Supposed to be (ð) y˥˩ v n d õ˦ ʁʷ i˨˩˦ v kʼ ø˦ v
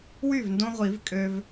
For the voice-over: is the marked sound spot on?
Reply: no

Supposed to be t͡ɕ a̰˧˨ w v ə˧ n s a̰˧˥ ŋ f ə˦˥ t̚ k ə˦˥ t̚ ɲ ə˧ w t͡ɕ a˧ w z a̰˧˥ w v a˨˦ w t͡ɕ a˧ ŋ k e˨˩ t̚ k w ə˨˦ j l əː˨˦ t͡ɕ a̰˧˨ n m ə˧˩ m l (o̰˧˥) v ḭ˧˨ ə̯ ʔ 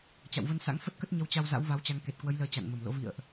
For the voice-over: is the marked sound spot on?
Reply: yes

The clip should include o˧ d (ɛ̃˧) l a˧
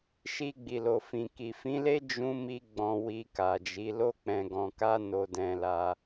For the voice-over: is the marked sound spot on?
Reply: yes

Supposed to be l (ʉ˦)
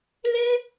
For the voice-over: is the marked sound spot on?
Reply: no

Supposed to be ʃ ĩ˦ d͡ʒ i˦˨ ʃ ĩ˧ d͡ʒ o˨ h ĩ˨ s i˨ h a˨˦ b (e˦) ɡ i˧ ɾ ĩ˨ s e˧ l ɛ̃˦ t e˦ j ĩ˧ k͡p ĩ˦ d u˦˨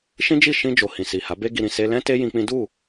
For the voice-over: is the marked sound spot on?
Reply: yes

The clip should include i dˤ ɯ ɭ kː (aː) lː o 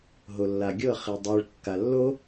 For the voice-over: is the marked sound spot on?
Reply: no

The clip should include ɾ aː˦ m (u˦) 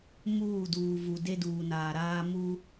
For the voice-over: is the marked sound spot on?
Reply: yes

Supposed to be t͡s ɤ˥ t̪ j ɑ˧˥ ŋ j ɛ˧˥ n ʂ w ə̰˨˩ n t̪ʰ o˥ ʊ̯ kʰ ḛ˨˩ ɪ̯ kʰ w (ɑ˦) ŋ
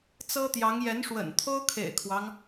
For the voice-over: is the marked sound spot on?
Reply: yes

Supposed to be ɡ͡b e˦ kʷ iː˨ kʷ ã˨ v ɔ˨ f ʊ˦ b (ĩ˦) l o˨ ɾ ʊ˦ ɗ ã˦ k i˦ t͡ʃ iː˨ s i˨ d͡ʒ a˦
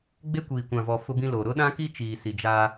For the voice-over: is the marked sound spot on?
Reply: yes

